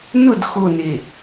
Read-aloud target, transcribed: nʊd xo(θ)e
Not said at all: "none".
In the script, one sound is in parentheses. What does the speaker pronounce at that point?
n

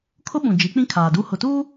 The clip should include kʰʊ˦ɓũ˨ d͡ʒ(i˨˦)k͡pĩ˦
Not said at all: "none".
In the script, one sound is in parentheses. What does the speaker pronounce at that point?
i˨˦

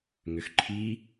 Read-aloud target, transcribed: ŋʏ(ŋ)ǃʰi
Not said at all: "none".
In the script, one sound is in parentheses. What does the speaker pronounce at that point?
x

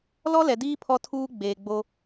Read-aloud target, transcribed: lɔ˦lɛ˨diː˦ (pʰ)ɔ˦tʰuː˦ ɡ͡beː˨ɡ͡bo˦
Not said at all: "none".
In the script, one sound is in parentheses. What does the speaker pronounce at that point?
pʰ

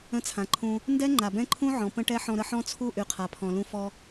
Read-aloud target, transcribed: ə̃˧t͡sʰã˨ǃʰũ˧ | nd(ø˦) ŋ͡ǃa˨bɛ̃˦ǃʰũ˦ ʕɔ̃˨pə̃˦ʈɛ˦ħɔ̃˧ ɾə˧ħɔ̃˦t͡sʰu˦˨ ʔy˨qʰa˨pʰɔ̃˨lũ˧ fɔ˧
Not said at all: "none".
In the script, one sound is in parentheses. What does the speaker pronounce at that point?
ɛ˦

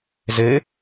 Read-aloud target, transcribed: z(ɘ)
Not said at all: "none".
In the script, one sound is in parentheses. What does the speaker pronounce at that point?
ɘ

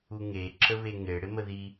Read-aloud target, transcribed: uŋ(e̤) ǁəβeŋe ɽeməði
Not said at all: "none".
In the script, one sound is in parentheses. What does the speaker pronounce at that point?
e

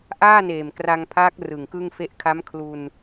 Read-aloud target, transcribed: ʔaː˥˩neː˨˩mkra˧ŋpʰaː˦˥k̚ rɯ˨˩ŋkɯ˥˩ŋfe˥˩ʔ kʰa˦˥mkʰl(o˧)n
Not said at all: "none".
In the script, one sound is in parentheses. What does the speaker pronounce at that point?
u˧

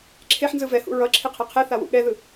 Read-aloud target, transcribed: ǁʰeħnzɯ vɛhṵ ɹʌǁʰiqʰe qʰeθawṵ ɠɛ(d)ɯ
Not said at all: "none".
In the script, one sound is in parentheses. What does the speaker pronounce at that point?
ð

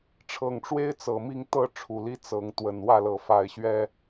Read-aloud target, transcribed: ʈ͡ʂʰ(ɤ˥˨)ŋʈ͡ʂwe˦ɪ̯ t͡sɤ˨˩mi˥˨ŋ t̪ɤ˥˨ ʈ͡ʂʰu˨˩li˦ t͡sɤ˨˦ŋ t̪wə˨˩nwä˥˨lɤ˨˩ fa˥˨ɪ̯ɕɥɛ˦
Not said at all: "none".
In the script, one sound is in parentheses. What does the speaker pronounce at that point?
ɤ˨˩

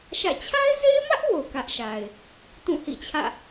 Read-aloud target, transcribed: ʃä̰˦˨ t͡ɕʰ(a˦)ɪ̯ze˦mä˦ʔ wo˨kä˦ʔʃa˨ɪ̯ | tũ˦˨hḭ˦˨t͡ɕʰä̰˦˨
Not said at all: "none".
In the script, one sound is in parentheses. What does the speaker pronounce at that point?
a˦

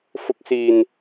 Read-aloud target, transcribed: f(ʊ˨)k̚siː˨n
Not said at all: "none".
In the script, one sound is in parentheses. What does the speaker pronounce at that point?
ʊ˨˥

